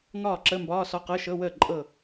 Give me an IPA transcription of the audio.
ŋ ɒː˥˩ ǁ ə˧˥˧ m b ɒː˧˥˧ s ɒ˧˥˧ q ɤ˧˥˧ ʃ ɤ˧˥˧ w əː˥˩ ǃʼ ɤ˥˩

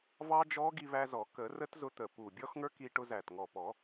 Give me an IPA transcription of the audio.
v ɑ˧ d͡ʒ ɔ˦˥ ɡ i˧ β æ˧ z ɔ˨˩˦ k ə˨˩˦ r ə˦˥ t z ʊ˧ t̪ ə˨˩ p u˨˩ bʲ ɔ˦˥ x ŋ ə˞˦˥ k i˧ ʈ ʊ˧ z æ˨˩ t ŋ ɔ˨˩ p ɔ˨˩˦

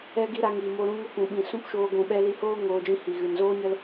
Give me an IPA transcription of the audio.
ɛ˦ ɡ i˦ ɾ a˧ ŋ i˨ m o˧ ɾ ũ˦ ŋ ə˦ k ũ˨ ɓ ĩ˨ s ũ˦ p ʃ oː˧ ɡʷ ũ˨ ɓ ɛ˦ l i˧ h oː˦ ŋ oː˧ d͡ʒ ĩ˦ h i˨ ɣ ɨ˨ n z oː˦ ɲ ə˦ l

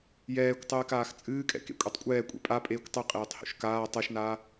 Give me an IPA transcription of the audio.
j ɛː kʷ tˤ ɨː k aː x t͡sʼ ɨː kʼ ɛ̰ k ḛ kʷʼ e tˤ kʷʼ ɛː kʷʼ ḛ pʼ a pʼ eː kʷ tˤ ɨ qʼ eː tˤ h ṵ ʃ k aː tˤ ɛ ʃ n aː

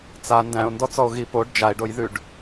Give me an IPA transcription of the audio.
t͡s a n d æ̃ o̯ n d ɔ t͡s ɔ o̯ ɣ i p o ɖ d͡ʒ a e̯ ɖ o j ð ʉ ɖ

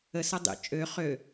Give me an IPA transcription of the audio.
ə s ɐ dˤ ḭ t͡ʃʼ ø χ ø

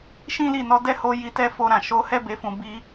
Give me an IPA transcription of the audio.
ʃ ĩ˦ l i˦˨ n ɔ˧ d ɛ˦ h o˧ j i˧ t ɛ˦ f o˧ ɾ ã˨ ʃ o˧ h ɛ˦ b e˧ f ũ˧ b i˧

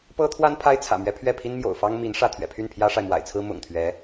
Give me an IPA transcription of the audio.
p ɤ˥ t̪ʰ w a˥ n pʰ a˥ ɪ̯ t͡sʰ ä̰˨˩ m ɥ ɛ˧˥ pʰ ɥ ɛ˥˩ pʰ i˥ n m j o̰˨˩ ʊ̯ f ɑ˥ ŋ m i˧˥ n ʂ ä˥˩ t̪ʰ ɥ ɛ̰˨˩ pʰ y˥˩ n pʰ j ä˥ ʂ a˨ ɪ̯ m w a̰˨˩ ɪ̯ t͡sʰ ɹ̩˥ m ʊ̰˨˩ ŋ t̪ʰ ɥ ɛ˧˥

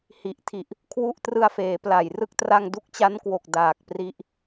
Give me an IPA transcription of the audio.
h i˨˩ ʔ tʰ i˨˩ ʔ | kʰ w u˥˩ ʔ t r ɯ˧ a̯ f eː˩˦ p l a˨˩ j r ɯ˥˩ k̚ t r a˧ ŋ d u˦˥ k̚ t͡ɕ a˦˥ n k w o˨˩ k̚ d aː˨˩ k̚ p r i˦˥ ʔ

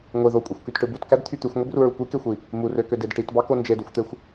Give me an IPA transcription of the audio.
ŋʷ i ð o kʷʼ i xʷ k y t ʈ ɯ b u t k æ d t̪ʰ y t̪ y xʷ ŋʷ i b r u ɹ u kʷ i k e xʷ i | m u r ø k ø d e d ʈ i t b ɑ k o n d͡ʒ e d u xʷ t̪ e xʷ

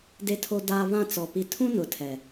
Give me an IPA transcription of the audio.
d e˦ tʰ o˦ d aː˦ β ã˦˨ t͡s ɔ˨ p i˨ tʰ ũ˦ n ʊ˨ tʰ ɛ˨

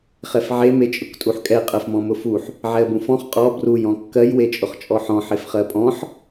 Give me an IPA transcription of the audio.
χ ɛ f ʕ e m e t͡ʃʼ ʊ k tʼ u ħ kʼ ɛ qʼ ɜ f m ɔ̃ m ʊ f u ħ | ʕ ɛ ə̯ b ũ f ɔ̃ χ qʼ ɔ b r u j ɔ̃ kː ɜ j w e t͡ʃʼ ʊ χ t͡ʃʼ ɔ ħ ɔ̃ ħ e f χ ɜ pʼ ɔ̃ ħ

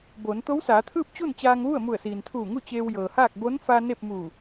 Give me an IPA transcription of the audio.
b o˩˧ n t̪ o˧˥ w s aː˩˧ t̪ʰ ɯː˥˨ p̚ t͡ɕ u˥˨ n t͡ɕ aː˧ ŋ ʋ u˥˨ ə̯ m u˧˩ ə̯ s iː˩ n t̪ʰ uː˧˩ ŋ u˥˨ t͡ɕ eː˧ w j ɤː˩ h aː˥˨ k̚ b o˧˥ n f a˧ n e˥˨ p̚ m u˧˩

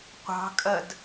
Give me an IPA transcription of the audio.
qʷ ɑ̤ kʼ ɜ d

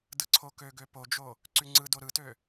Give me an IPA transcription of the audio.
d ɯ ǀʰ o k ø ɡ ø p o d͡ʒ o | ǀ y ŋ͡ǀ ɯ d o ɾ ɯ t ø

